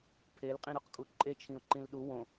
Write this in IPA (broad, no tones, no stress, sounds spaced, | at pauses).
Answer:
pʰ e l qʼ ĩ ɾ o q kʼ u ǃʼ e t͡ʃʰ ĩ ʊ̯ ǃ ĩ l ɗ u w õ